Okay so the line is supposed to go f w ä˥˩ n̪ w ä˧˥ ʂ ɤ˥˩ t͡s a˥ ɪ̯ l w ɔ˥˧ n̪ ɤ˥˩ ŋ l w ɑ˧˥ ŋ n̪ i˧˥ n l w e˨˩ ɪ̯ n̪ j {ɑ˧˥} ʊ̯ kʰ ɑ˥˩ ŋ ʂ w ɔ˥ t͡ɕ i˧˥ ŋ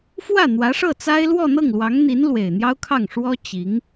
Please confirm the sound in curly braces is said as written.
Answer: no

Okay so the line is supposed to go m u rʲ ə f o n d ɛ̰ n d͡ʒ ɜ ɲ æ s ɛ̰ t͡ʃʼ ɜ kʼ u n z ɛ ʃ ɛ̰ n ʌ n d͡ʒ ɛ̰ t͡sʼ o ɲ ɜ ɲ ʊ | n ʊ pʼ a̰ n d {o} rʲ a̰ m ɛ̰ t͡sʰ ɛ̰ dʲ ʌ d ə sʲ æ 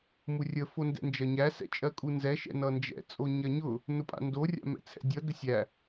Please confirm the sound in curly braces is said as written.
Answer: yes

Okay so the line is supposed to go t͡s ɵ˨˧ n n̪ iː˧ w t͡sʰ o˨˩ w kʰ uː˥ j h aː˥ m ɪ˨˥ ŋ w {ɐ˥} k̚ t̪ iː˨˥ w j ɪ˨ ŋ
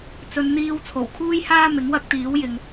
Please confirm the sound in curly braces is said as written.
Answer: yes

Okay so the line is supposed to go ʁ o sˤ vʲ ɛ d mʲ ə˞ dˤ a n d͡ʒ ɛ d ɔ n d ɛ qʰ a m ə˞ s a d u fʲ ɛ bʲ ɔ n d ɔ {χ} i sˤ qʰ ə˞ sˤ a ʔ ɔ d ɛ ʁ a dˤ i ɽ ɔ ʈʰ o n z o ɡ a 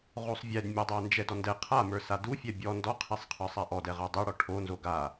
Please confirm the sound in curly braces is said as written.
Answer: no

